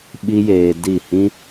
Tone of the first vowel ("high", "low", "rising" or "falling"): high